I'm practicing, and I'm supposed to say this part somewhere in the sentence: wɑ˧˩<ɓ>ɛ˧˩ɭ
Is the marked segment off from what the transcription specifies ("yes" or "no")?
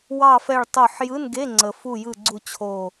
yes